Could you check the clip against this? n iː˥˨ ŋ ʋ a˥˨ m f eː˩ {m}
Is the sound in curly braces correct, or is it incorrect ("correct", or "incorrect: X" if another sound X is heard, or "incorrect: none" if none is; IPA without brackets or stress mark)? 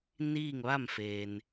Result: incorrect: n